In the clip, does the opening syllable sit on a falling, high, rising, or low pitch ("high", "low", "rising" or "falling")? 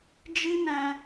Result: high